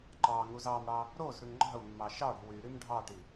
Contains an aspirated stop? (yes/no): no